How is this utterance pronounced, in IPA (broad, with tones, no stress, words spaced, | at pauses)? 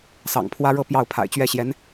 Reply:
sɑ̰˨˩ŋpʰwä˥ɻɤ˥˧ pjɑ˥˩ʊ̯pʰa̰˨˩ɪ̯t͡ɕɥɛ˥˩ɕjɛ˧˥n